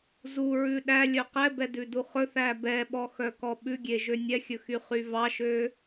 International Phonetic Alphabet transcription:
z u ɹ ʉ ɗ æ lʲ œ q ɛ b ɛ d ʉ d u χ ɵ θ æ b ɛ ɓ ɔ x œ k ɔ ɓ ʉ ɡʲ e ʒ ø nʲ ɛ xʲ ɵ x y χ y v ɑ ʃ ø

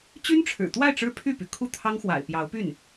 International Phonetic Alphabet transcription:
t͡ɕ y˥ n ʈ͡ʂʰ ɻ̩˨˩ t̪ w a˥˩ ɪ̯ ʈ͡ʂ ɻ̩˥ pʰ y˥˩ p y˩ kʰ u˥˩ t̪ʰ ɑ˥ ŋ x w a̰˨˩ ɪ̯ p j ɑ˧˥ ʊ̯ p y˥˩ n

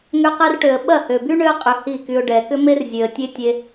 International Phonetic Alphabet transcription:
ŋ ø˧ q ɛ˧ r ʈ ø˨ ə̯ ɓ ɐ˦˨ h ø˨ b y˦ ɳ ø˦ ə̯ qʼ ʏ˧ h i˦˨ k y˧ ʊ̯ ɖ ɛ˨ k ʏ˦ m e˦ r zʲ ø˨ ə̯ tʲ e˦ tʲ e˧

